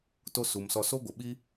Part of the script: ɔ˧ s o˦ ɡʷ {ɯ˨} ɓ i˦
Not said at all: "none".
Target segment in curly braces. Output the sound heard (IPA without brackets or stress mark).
ə˨